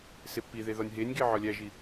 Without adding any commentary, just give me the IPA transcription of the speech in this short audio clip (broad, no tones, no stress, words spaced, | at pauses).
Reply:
sepːiðe ðɒnʲɦenʲɡe ʕɒlʲæʒi